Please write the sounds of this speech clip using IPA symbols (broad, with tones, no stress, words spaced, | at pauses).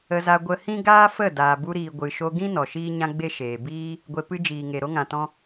ə˧za˧ ɡʷə˧ hĩ˦ ɡaː˦fə˦˨ daː˨bu˧ɾiː˨ ɡʷɨ˨ʃo˧ɡĩ˦ nɔ˨ʃiː˦ɲã˦ ɡ͡be˦ʃeː˨ biː˦ | ɡʷe˧ pɨ˧d͡ʒiː˨ŋe˨ ɾo˦ŋã˨tɔ̃˧